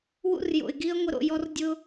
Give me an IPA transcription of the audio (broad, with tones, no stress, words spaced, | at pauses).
wṵ˦rjo̰˨ɪ̯ɡi˦ə̯ ŋʷɪ˧ɾo̰˨jɔ˧r dʲʊ˧